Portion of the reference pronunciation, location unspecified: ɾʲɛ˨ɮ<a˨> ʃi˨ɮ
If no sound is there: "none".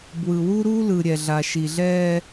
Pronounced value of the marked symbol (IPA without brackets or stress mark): a˨